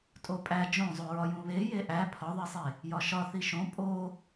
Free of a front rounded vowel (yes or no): yes